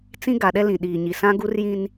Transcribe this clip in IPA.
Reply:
t͡s ĩ˦ ɡ a˨ ɗ ɛ˦ l ĩ˨ ɗ iː˨ ɲ i˨ s ã˦ ɡ u˦ r j ĩ˦ n

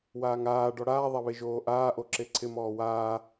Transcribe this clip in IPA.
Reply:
w aː ŋ aː ɖ ɔ ɽ aː ðˤ a β e ʒ oː ʔ aː ʔ o ǁ e ǀʰ ɪ m ɔː w aː

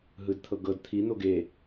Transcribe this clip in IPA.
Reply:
ɦ ɯ d t̪ʰ ɤ ɡ ɤ d t̪ʰ i n̪ o ɡ e

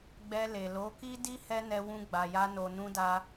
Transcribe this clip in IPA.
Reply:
ɡ͡b ɛ˧ l e˨ l o˨˦ k i˦ d i˦ h ɛ˦ n ɛ˧ w ũ˧ ɡ͡b a˨ j a˧ n o˨ n ũ˧ d a˧

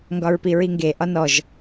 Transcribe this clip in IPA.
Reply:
ŋ ɡ ɒ ɹ p i ɹ i ŋ ɡ e ʔ ɒ n ɔ ʒ

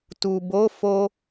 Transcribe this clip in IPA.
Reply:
t u˨ b o˨˦ f o˧

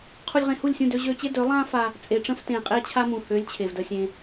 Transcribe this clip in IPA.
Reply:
qʰ u˧ lʲ ʁ ẽ˧ h u˦˨ lʲ sʲ ũ˦˨ d ø˧ ʑ ø˧ t͡ɕ e˦ d ø˨˦ lˠ ã˦ f a˧ | t͡sʼ e˨ ʈ͡ʂ ə̃˧ f t ẽ˨ qʼ e˦ t͡ɕʰ a˦ m ũ˨ h ø˨˦ lʲ t͡ɕʰ e˨ v d ə˧ sʲ ẽ˧

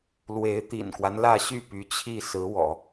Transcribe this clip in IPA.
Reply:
l w e˧˥ ɪ̯ t̪ ḭ˨˩ n k w a˦ n l ä˥˧ ɕ y˥˩ p y˧˥ t͡ɕʰ i˥˩ s ɹ̩˧˥ w ɔ̰˨˩˦

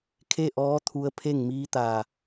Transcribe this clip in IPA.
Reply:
kʰ e˥˨ ʔ ɔː˧˥ t̪ʰ u˧ ə̯ pʰ e˥˨ ŋ m iː˧˥ t̪ a˧˩

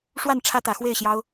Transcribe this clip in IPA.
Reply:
ʂ w a˥˨ n ʈ͡ʂʰ ä˦ t̪ ä˨˦ x w e˥˨ ɪ̯ ɕ j ɑ˦ ʊ̯

